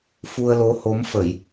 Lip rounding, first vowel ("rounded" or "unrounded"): rounded